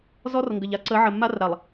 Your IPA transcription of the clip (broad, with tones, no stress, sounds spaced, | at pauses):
z ɔ˦ r ŋ ɡ ə˨ ʎ a˦ ǀ ə˨˦ ʕ ə˨ mː a˦ r ɾ a˨ lˠ